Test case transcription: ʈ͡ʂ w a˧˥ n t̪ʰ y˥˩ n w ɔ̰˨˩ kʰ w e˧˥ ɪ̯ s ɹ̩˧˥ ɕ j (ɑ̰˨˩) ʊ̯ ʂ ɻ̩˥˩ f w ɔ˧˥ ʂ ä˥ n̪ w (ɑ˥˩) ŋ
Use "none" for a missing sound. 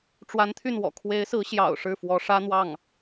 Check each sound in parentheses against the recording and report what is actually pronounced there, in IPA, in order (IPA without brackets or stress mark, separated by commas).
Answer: ɑ̰˨˩, ɑ˥˩